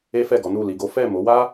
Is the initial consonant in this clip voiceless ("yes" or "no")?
yes